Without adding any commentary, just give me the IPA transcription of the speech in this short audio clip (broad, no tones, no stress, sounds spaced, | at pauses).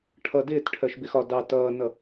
ʈʰ ʌ d ɪː t ʈʰ ɜ ʃ b ɪ x ɒ d ɑ t ʌː n ʌ